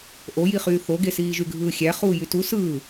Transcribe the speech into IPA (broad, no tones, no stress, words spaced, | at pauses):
ʔojiχyː θoɡesiːʒy ɡʱɯːxʲæ χuːjytu sɯː